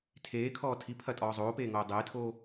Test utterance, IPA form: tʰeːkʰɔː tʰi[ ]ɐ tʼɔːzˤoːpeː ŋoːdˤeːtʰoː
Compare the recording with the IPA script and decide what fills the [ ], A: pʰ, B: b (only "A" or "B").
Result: A